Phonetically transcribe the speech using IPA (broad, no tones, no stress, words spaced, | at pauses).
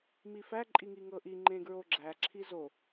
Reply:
mifæ ǃʼiŋiŋɤʔi ŋ͡ǃẽɡɹoɡ͡ǁæ ǁʰizo